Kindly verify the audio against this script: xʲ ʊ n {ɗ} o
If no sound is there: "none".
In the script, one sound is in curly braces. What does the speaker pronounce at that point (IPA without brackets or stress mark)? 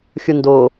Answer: d